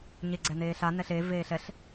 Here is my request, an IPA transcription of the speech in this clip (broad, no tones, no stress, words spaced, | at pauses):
ɲeɡ͡ǀɛneːɬa nɛɬe veːɬɛɬ